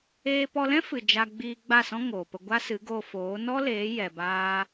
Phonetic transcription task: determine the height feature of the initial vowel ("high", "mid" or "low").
mid